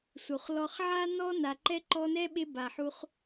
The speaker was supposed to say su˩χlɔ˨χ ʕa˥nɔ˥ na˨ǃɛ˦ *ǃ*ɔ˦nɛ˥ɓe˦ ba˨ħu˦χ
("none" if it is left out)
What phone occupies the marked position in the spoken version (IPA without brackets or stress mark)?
ǃ